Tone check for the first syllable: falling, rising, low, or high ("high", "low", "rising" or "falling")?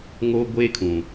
high